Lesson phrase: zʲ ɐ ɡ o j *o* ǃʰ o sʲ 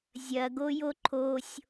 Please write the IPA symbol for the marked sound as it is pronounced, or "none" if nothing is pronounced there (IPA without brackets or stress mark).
o